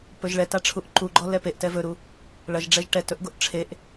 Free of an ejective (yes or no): yes